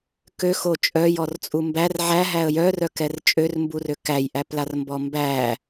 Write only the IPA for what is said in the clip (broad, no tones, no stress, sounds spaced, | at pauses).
k ø x o t͡ʃʼ œ j ɔ r t͡sʼ u m b æ r ʕ æ ɦ æ ə̯ j œ r œ k ɛ r t͡ʃʼ ø r m b u r ø k æ j ʔ æ p l a r m b ɔ m b æ